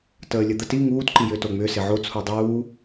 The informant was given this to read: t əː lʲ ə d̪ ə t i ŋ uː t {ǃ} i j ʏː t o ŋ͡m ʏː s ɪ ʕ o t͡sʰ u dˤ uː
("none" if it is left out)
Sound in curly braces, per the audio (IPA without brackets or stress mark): ǃ